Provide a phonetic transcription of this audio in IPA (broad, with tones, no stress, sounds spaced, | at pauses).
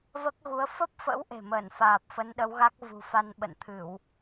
v əː˦˥ k̚ ɣ u˨˦ ə̯ f ə˦˥ p̚ f ə̰˧˥ w ʔ e̤˨˩ m əː˧˩ n f aː˨˩ p̚ f ə˨˦ n ɗ ə˨˦ w ɣ a˦˥ k̚ v ṳ˨˩ f a˧ n ɓ ə̰˧˨ n t̪ʰ ɨ˧˩˨ w